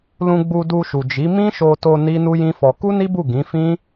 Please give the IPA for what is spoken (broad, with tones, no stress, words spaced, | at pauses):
lũ˧ ɡ͡bu˧ du˧ʃu˨d͡ʒi˨˦ mĩ˦ʃo˧to˧ ni˦nu˦jĩ˦fɔ˧ ku˦ni˦bu˦˨ ɡĩ˨˦fĩ˦